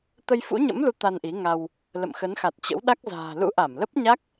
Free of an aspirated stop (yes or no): yes